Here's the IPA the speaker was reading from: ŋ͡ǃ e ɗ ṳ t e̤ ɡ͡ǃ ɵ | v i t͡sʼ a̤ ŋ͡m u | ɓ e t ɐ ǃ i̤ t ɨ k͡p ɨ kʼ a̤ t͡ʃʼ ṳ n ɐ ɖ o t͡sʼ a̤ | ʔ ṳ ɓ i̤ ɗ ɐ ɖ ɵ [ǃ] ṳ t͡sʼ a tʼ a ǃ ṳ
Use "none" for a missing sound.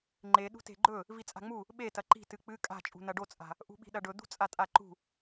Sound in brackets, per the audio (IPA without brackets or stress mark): d̪